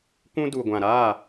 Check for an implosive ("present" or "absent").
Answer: absent